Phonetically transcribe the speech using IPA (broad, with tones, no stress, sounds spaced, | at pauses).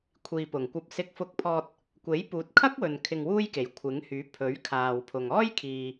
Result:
kʷʰ iː˨ p ʊ˨˩ ŋ kʷ ɐ˧ p̚ s ɪ˧ k̚ f ʊ˧ k̚ pʰ ɔː˧ t̚ | kʷ e˨˥ j p uː˨˥ t̚ kʰ ɐ˥ k̚ w ɵ˨ n kʰ ɪ˧ ŋ w uː˥ j k e˨˩ j kʷʰ ɪ˨˥ ŋ h yː˨˥ pʰ ɵ˨˥ ɥ kʰ aː˨ w pʰ ʊ˨ ŋ ɔː˥ j kʰ iː˨